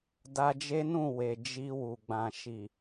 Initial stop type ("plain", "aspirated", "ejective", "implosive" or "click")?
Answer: plain